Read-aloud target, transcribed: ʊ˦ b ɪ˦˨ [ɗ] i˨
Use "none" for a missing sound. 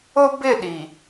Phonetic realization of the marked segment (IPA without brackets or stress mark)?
ɗ